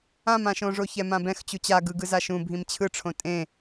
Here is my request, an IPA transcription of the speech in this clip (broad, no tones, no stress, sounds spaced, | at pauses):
ã m ã ʃ õ ʐ o ç ɛ m ã b ɛ̃ x t͡ɕ u t͡ɕ a ɡ ɯ ɡ ɯ z a ʃ ũ bʱ ĩ m t͡ɕʰ ɯ ʈ͡ʂʰ õ tʼ ẽ